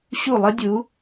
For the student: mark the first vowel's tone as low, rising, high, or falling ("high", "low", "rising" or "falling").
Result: falling